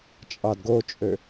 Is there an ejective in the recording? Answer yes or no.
yes